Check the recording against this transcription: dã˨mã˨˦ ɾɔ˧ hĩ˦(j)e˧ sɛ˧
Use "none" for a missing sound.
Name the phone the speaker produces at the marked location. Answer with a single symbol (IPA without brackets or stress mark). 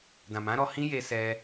j